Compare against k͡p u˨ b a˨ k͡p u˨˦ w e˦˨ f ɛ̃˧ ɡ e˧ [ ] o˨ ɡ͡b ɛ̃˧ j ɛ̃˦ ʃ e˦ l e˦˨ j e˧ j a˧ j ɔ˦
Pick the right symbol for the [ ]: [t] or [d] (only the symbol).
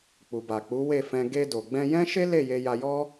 d